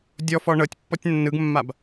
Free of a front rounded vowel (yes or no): yes